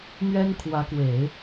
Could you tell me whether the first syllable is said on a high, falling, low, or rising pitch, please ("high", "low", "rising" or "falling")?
high